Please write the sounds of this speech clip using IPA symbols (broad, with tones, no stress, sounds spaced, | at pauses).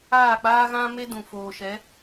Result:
aː˦˨ k͡p aː˦ ɣ ã˦ m e˦ d ũ˨ f oː˨ ʃ ɛ˨˦